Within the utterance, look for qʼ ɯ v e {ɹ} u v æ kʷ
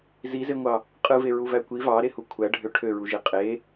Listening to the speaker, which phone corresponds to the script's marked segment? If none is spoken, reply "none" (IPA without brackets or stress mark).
ɹ